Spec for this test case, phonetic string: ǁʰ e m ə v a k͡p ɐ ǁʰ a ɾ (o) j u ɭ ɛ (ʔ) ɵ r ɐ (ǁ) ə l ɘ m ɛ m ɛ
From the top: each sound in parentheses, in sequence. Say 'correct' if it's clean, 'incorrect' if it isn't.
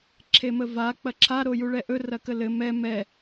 correct, correct, incorrect: k

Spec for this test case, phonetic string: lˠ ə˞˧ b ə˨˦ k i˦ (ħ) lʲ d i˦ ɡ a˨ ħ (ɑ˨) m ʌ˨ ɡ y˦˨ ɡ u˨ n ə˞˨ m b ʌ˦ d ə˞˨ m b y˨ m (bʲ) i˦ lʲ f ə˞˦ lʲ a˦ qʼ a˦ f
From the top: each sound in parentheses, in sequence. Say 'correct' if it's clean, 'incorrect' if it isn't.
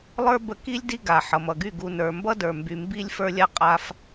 incorrect: none, incorrect: ʌ˨, incorrect: b

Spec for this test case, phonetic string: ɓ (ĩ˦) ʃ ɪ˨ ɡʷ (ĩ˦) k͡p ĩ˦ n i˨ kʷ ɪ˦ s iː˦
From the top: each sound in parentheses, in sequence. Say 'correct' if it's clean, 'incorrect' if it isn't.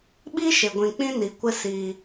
incorrect: i˦, incorrect: ĩ˨

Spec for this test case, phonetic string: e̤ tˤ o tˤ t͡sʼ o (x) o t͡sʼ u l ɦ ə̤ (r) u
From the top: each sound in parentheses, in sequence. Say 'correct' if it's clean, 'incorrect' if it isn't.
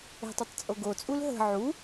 incorrect: ɡ, incorrect: ʕ

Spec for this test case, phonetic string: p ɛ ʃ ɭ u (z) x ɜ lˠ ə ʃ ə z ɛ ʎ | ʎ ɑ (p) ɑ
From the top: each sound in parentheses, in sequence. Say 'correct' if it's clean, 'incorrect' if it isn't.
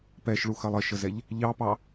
incorrect: none, correct

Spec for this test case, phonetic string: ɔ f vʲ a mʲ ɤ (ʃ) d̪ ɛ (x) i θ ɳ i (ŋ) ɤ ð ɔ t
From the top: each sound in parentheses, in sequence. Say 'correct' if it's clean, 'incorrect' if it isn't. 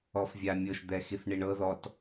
correct, correct, incorrect: ɳ

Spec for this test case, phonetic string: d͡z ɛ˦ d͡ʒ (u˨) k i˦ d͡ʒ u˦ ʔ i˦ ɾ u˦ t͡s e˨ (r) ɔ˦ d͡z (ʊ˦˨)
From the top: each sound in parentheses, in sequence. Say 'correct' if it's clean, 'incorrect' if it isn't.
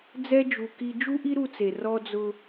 correct, correct, incorrect: ʊ˦

